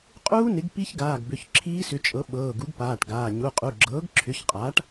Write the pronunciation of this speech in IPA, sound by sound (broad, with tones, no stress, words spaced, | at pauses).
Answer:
qʼuː˦˥nɪ˩˥ɡ pi˦˥çɡaː˩˧˩ɡbʏ˩˧˩ç ǁʰiː˦˥ sʏ˩˥t͡ʃʼɤ˩˥ ɓɤː˩˧˩ɡu˩˥ɡpaː˩˧˩ʈɡaː˩˧˩ ɲu˩˧˩qʼu˩˧˩ɡ͡ǁɤː˩˥ɡ ǁʰʏ˩˥çqʼaː˩˥ʈ